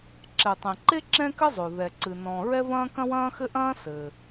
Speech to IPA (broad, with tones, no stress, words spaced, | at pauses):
ǁɛ˩tˤẽ˩ǃe˥ ǁɛ̃˥kɘ˥zˤo˩ ðɛ˩ǀɨ˩nɔ̃˩ ɹɛ˥vɐ̃ː˥ kɐ̃˥wɐ̃ː˥xɘ˥ʔɐ̃ː˥ sɘː˩